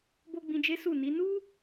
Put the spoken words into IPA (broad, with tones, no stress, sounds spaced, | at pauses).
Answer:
b o˦ ɡ͡b ĩ˧ d͡ʒ e˦ s u˦˨ n i˨˦ n u˦